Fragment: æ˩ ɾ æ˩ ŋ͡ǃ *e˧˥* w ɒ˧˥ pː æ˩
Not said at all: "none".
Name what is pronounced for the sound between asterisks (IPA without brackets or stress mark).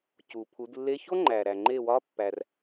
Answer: e˧˩